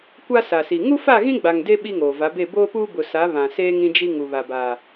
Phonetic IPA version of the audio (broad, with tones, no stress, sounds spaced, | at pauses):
kʷ a˦ s a˨ s i˨ ŋ u˦ f a˦˨ ɣ ĩ˦ ɡ͡b a˨ ŋ d e˦ ɓ i˦ ŋ oː˨ v a˨˦ b e˦˨ b oː˦ p uː˦ b ʊ˨ s a˨˦ β ã˨ s eː˦ ŋ ĩ˦ d͡ʒ i˦ ŋ u˨ β a˨ b aː˨